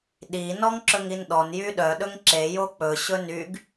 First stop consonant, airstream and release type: implosive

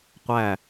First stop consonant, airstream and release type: plain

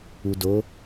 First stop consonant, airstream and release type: plain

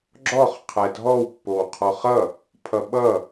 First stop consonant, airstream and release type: click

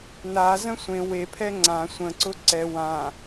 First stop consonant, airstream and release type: aspirated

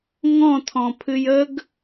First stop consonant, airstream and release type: aspirated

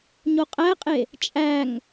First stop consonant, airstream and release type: ejective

